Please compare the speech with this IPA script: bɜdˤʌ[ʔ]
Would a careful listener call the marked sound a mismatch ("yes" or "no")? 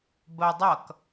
yes